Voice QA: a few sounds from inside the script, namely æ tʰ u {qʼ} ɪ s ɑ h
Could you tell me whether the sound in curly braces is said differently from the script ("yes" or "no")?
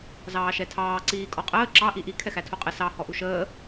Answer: no